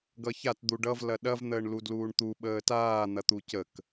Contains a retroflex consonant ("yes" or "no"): yes